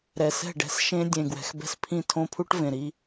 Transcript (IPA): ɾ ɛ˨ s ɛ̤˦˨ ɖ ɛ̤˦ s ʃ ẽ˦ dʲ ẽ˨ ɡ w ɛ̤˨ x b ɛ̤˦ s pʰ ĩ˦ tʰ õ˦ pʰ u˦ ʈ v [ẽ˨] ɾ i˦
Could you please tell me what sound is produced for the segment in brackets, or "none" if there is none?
ẽ˨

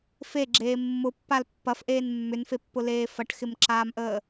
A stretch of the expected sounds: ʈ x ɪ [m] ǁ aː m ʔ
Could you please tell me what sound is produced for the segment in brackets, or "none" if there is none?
m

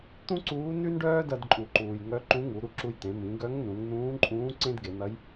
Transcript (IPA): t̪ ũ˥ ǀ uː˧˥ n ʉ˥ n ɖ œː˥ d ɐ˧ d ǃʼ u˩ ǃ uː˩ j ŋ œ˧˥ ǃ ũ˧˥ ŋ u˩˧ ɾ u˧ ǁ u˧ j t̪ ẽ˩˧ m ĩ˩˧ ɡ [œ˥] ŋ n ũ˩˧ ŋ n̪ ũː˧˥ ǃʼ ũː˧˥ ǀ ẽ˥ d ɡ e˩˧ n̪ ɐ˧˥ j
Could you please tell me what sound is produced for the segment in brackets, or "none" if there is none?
œ˧˥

